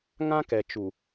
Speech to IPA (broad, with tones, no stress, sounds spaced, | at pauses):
ŋ ã˦ k ɛ˨ t͡ʃ u˨